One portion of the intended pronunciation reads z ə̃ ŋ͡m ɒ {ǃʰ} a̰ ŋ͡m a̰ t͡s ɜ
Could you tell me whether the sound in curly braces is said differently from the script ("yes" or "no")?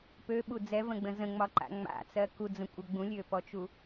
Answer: yes